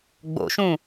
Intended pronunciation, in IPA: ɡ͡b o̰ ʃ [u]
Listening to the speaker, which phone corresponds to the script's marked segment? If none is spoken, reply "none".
ũ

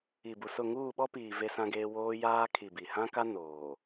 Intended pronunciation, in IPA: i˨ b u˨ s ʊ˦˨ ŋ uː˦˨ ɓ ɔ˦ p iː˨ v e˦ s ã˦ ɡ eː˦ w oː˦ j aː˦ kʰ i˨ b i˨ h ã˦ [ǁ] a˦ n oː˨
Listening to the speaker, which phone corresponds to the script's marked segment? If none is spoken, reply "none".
k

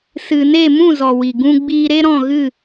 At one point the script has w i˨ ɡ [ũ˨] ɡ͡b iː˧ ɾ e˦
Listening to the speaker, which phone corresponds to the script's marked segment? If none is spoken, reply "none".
ũ˧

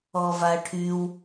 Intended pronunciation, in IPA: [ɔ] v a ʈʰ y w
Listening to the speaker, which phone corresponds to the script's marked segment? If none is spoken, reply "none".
ɔ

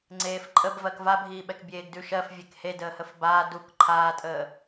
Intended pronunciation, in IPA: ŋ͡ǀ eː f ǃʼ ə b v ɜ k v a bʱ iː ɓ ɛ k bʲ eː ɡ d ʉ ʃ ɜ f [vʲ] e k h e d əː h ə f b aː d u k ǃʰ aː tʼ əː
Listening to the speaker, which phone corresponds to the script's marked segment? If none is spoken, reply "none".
vʲ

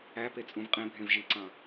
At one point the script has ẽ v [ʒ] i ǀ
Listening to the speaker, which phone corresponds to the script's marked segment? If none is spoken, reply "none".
ʒ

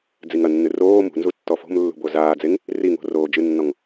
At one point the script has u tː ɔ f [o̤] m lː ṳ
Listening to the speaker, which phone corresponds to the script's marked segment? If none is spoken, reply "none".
o̤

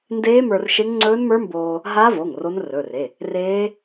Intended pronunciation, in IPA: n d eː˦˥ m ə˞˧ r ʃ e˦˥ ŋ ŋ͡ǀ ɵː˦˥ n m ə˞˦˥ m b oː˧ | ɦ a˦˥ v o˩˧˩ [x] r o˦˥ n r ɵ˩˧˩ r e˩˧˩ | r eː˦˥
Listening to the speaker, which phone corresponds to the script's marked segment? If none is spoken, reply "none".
ŋ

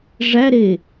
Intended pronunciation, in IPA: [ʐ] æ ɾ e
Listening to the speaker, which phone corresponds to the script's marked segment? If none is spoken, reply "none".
ʐ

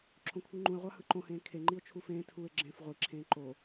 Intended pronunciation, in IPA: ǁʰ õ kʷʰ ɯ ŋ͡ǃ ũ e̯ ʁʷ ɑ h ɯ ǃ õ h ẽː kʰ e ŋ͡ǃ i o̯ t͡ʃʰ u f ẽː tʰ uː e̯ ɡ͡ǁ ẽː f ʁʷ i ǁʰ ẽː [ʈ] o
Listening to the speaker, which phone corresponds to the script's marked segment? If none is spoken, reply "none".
ǃ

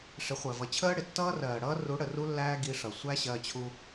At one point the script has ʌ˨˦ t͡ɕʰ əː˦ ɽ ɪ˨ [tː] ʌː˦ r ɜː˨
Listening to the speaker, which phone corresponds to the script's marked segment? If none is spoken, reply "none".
tː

